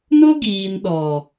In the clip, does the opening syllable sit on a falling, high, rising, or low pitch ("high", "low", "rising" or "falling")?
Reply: high